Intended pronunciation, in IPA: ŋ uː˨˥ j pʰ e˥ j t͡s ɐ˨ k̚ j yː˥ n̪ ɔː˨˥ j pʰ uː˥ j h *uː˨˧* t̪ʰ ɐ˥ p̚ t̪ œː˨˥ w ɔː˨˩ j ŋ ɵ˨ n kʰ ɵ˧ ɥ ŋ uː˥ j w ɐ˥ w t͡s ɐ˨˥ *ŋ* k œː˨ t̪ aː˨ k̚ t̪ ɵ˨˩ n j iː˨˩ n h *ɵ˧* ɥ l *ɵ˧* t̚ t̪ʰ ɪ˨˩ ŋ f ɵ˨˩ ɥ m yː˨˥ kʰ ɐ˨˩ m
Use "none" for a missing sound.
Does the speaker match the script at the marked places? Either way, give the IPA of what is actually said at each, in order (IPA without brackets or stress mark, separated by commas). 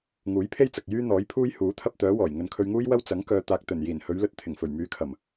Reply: uː˨˥, ŋ, ɵ˨˧, ɵ˧